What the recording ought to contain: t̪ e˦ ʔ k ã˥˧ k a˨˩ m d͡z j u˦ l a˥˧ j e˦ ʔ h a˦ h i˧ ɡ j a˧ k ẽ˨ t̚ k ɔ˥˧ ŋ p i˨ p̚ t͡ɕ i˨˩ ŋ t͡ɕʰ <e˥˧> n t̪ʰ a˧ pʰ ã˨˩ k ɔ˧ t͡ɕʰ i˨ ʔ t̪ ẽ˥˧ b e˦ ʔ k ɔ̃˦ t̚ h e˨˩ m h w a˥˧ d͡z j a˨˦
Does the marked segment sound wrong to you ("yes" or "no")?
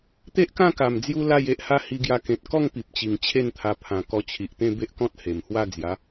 no